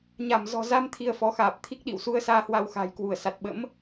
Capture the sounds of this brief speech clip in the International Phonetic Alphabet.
ɲ a˧˩ m z ɔ̤˨˩ z a˧ m t̪ʰ i˧ ə̯ f ɔ˨˦ x aː˨˩ p̚ t̪ʰ i˦˥ k̚ ɗ ḭ˧˨ w s u˧ ə̯ s aː˧ h w a˧ w x a̤ː˨˩ j k w u˧˩ ə̯ s a˨˩ t̚ ɓ ə̰˧˥ m

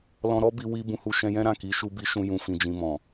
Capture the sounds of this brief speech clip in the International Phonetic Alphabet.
l ɔ̃˧ ɾ ɔ˦ b i˧ w i˦ b ũ˧ h u˧ ʃ ɛ̃˧ j ɛ̃˦ ɾ ã˦˨ k i˨˦ ʃ u˧ b i˧ ʃ ũ˧ j ũ˨ f ĩ˨ d͡ʒ ĩ˨ m ɔ̃˨

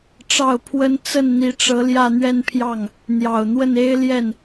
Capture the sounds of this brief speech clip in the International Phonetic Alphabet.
ʈ͡ʂ ɑ˥˩ ʊ̯ pʰ w ə˥ n t͡s ə˥˩ n n̪ i˧˥ ʈ͡ʂ ɤ˧˥ l j ä˥˧ n̪ ɥ ɛ˥˧ n pʰ j ɑ˥˩ ŋ | n̪ j ɑ˨˩ ʊ̯ n̪ w ə˥˩ n e˥ ɪ̯ l j ɛ˥˩ n

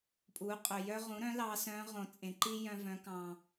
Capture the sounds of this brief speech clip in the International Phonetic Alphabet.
pʼ u˩˧ qʼ ɵ˩ j œ˧ ʁ ũ˩˧ ɾ œ̃˩˧ l ɑ˧˥ s œ̃˧˥ ʁ õ˩ t͡sʼ ẽ˩˧ ǃ i˥ j œ̃˧ v œ̃˩˧ k ɑ̃˩

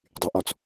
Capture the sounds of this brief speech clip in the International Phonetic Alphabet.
dˤ y ʔ ɔ t͡s

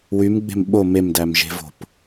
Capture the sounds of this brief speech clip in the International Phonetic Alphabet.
w y m ɡ͡b e̤ m ɓ o m e m d æ m ʒ e̤ v o̤ p

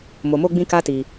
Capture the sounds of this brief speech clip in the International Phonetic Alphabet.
m o˨ m o˧ ɡ͡b ĩ˦ k a˦ t i˧

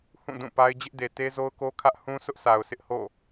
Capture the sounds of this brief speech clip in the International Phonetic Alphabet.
h ũ˦˨ d ũ˦˨ p a˦ ɪ̯ d͡ʑ ɪ˦ ʔ d e˨ t e˦ z o˦ ʊ̯ k o˦ kʰ ä˦ ʔ h ũ˦ s ʊ˦ ʔ sʰ a˨ ʊ̯ s ɪ˦ ʔ h o̰˦˨

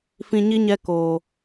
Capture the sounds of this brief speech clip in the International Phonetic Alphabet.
f ĩ˧ ɲ i˦ ɲ ɛ˧ k oː˨

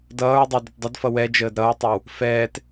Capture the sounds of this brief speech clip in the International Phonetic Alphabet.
d ʌː ɹ dˤ ɛ d ə t dˤ ə d f ʌ w ɛ d͡ʒ əː d ɾ ʌ ɹ tˤ ʌ w | f ɛː t

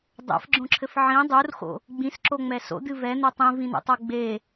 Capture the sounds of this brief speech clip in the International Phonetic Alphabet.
dˤ ɛ̰ f ɡ͡ǁ õ ǁʰ ɘ f ʕ ĩ dˤ u r x o̰ | ɡ͡b ĩ s ǁ o ŋ͡m ɛ s o̰ d̪ ɨ v ɛ n̪ o tˤ ĩ v ĩ n̪ ṵ tˤ o ɡ͡b e

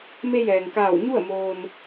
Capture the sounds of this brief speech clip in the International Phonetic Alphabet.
m e˧ j ɛː˩ ŋ k aː˧˩ w ɲ u˥˨ ə̯ m oː˧ n

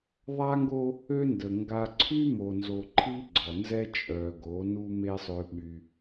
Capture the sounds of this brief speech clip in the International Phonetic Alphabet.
ðˤ a˦ ŋ ɡ o˦ | ø˦ n d ə˨ ŋ ɡ a˦ ǀʰ y˦ m o˨ n z o˨ ǃʰ i˦ ɡ͡ǀ ɔ˨ n z ɛ˦ t͡ʃʼ œ˨ ɡ o˨˦ n u˦ m e˦ sˤ ø˦ ɓ y˦

